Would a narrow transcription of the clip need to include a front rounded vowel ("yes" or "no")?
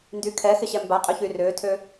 yes